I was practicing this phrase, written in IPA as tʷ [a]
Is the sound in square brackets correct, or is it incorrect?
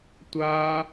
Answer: correct